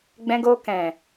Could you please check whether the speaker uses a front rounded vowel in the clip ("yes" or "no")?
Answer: no